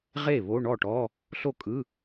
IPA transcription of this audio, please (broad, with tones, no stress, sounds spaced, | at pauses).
ʁ e˥˩ β o˧˥˧ ɳ ɔ˥˩ ʈ ɔ˧˥˧ | ɬ o˥˩ kʼ ɯ˧˥˧